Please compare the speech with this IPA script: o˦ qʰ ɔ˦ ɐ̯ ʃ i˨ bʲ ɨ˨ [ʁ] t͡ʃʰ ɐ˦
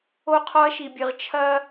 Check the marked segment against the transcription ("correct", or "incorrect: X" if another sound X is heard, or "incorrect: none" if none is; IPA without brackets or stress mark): correct